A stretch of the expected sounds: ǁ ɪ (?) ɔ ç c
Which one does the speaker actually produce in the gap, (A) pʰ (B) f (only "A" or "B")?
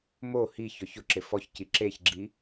B